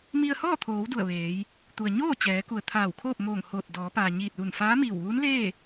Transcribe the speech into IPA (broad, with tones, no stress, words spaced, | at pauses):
mi˧ə̯hɔː˥˨t̪ʰoː˩˧w du˧˩ə̯ʋeː˩˧j | t̪u˩ə̯ɲoː˥˨ t͡ɕɛː˩˧ku˩ə̯ t̪ʰaː˧˩wkʰoː˥˨p̚moː˧˩ŋhoː˧˩t̚ dɔː˩˧paː˩ ɲiː˧˩t̚luː˧˩nfaː˧˥miː˧˩w ʋuː˧˥nleː˥˨